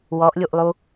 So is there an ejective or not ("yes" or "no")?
no